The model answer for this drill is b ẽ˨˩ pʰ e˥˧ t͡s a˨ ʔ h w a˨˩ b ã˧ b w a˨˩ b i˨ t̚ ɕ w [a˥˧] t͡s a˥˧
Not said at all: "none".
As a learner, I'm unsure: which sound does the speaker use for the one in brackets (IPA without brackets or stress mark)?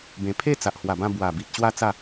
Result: a˥˧